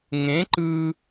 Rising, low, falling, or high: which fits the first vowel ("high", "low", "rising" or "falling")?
rising